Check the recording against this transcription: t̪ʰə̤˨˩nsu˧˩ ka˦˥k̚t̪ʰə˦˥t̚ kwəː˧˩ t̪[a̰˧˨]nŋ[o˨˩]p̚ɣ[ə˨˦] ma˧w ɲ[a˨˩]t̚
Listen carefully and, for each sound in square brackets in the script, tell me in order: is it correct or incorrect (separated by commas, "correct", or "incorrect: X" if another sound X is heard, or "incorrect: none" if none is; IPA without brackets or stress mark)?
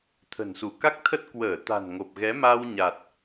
incorrect: a̤˨˩, correct, incorrect: ɛ˨˦, correct